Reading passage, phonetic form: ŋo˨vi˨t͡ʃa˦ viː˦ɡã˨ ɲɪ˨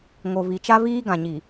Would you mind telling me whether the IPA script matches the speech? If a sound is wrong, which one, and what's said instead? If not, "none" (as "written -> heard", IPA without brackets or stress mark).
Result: ɪ˨ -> i˨